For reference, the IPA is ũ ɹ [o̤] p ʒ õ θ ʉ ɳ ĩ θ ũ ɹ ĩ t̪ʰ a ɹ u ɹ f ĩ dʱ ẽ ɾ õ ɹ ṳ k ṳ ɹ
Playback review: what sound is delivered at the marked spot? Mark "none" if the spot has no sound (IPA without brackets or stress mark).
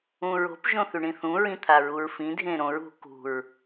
o̤